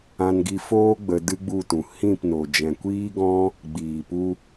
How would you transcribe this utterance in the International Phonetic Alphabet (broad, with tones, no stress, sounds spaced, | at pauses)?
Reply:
ã˧ n ɡ i˧ f oː˦ ɡ͡b ə˧ d ɨ˦ ɡ͡b u˦˨ t ũ˨ h ĩ˦˨ p n o˨ d͡ʒ ɛ̃˨ kʷ iː˦ ɡ ɔ̃˦ | ɡ͡b iː˨ p u˧